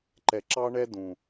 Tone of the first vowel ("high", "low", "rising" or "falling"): low